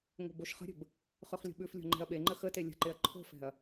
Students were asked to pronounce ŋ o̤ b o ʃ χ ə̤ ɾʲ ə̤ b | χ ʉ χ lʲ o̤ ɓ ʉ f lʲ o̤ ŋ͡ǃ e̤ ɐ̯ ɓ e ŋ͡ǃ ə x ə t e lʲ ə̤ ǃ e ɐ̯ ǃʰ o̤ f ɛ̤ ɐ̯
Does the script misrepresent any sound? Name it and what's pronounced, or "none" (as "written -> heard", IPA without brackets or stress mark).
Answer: none